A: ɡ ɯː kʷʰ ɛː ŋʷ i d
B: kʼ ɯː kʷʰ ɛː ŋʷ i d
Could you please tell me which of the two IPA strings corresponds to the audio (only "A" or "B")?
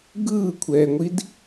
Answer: A